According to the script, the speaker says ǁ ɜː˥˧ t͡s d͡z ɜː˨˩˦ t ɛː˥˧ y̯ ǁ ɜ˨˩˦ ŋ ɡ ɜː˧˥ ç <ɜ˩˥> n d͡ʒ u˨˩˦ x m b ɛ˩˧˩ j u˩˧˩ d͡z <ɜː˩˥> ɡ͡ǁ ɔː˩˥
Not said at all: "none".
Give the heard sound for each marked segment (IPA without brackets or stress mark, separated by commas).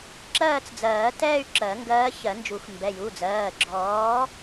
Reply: ɜ˨˩˦, ɜː˩˧˩